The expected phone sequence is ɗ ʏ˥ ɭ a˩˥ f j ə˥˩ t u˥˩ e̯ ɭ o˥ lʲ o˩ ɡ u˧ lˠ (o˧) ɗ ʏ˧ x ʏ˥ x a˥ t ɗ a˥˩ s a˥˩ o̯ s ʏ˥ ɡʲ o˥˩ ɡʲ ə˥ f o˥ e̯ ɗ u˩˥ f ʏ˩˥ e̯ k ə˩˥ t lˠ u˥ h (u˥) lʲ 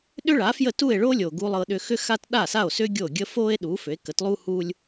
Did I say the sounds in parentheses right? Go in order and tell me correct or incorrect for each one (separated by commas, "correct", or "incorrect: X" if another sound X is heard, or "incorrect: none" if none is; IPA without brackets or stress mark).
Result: incorrect: ɤ˧, correct